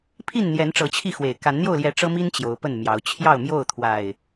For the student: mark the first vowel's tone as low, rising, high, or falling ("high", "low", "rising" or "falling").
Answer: falling